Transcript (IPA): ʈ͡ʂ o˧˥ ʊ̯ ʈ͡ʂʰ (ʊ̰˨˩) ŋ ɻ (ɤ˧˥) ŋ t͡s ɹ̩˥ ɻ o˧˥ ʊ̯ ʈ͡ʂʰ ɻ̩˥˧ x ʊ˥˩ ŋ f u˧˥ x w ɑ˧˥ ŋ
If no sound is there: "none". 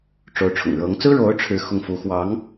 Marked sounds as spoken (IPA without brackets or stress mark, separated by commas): ʊ̰˨˩, ɤ˧˥